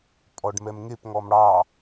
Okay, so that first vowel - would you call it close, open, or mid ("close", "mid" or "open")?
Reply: mid